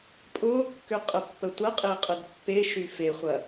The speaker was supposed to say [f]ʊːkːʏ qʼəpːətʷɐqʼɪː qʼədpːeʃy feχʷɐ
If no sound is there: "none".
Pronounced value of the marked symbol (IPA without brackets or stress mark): pʼ